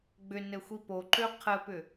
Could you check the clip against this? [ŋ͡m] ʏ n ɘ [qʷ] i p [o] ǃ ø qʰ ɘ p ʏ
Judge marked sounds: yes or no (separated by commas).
no, no, yes